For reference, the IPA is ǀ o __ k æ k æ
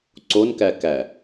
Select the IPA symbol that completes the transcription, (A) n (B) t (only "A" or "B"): A